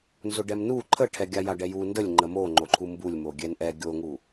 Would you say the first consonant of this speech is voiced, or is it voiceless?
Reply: voiced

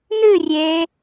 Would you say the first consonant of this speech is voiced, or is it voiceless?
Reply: voiced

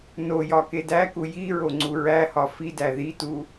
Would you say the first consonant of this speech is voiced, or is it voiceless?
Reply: voiced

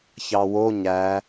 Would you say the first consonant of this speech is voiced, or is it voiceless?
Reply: voiceless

